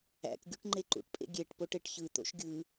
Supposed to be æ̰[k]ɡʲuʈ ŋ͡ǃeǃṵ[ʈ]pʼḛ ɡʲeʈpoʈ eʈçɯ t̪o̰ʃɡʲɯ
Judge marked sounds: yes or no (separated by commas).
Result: yes, yes